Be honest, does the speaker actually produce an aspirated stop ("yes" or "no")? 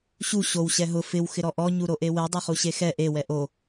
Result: no